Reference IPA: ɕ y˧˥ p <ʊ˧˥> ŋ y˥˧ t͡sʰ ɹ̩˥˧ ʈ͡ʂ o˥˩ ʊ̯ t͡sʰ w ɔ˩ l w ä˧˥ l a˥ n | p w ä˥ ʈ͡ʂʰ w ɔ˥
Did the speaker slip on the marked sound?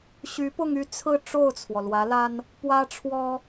yes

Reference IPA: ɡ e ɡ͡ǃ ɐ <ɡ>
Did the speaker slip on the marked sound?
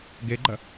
yes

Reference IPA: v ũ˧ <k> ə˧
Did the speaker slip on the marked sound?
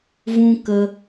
no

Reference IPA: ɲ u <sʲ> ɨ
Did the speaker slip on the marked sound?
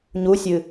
no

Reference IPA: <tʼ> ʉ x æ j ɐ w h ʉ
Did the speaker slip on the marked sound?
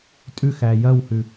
no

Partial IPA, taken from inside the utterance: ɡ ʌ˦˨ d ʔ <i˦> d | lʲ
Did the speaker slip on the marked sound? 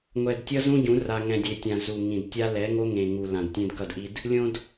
no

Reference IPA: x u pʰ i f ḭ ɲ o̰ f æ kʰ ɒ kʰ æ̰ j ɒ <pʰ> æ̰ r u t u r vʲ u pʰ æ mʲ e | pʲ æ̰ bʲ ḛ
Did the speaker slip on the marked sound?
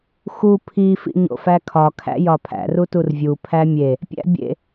no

